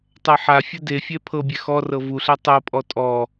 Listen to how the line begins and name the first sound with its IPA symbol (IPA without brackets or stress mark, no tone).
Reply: tˤ